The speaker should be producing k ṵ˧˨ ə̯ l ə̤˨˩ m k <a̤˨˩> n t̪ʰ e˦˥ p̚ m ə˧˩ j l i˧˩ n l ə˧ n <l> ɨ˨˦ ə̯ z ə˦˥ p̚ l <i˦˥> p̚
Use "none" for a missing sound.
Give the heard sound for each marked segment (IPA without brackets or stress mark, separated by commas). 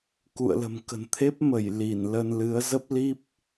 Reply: ə̤˨˩, l, i˦˥